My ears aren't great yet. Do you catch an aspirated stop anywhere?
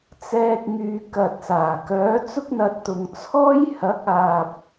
yes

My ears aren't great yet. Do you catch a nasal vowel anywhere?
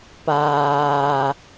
no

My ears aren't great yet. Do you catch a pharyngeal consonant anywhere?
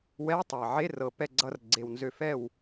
yes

